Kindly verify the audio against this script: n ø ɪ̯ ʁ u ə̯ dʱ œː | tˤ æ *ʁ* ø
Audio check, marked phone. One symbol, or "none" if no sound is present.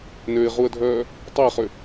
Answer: χ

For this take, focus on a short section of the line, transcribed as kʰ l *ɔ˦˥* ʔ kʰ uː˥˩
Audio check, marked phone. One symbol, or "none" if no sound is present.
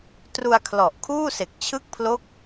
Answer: ɔ˨˩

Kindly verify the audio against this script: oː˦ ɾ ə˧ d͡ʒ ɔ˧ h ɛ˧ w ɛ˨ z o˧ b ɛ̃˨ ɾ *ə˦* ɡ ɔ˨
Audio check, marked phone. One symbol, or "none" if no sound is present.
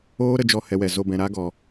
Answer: a˦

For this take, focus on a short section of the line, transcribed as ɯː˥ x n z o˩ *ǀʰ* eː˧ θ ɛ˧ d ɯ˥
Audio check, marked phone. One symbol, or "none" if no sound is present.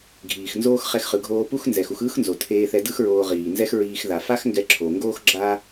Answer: tʰ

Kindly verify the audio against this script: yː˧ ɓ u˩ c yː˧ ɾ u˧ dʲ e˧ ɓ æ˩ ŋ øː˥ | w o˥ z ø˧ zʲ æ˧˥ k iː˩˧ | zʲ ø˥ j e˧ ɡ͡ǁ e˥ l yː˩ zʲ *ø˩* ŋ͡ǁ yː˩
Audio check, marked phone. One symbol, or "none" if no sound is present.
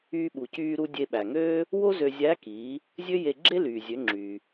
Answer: ø˩˧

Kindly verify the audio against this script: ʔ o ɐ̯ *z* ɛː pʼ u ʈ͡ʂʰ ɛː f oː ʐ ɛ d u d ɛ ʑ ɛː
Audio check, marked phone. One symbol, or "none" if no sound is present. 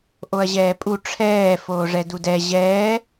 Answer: ʑ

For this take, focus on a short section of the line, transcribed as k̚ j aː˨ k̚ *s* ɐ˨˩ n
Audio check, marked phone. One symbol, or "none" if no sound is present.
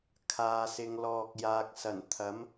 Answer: s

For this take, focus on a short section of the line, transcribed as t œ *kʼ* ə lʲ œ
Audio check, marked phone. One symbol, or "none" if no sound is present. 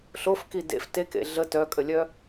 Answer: kʼ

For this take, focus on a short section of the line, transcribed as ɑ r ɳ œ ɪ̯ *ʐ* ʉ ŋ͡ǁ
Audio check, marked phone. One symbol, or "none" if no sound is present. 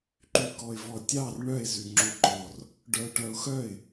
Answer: z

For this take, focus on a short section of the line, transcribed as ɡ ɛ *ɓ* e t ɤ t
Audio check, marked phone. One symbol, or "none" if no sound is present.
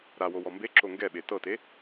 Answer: ɓ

